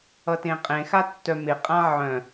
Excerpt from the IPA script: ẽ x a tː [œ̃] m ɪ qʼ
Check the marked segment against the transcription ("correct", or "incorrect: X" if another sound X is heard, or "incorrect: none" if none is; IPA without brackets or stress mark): incorrect: œ